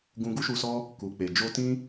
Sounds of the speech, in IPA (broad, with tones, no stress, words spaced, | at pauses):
ɡũ˧ɡu˦ʃu˧sɔ˦ | ku˨k͡pe˨ d͡ʒo˧tĩ˦